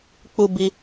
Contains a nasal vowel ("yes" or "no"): no